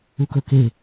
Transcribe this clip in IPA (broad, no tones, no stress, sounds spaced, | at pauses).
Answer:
u k ɵ k e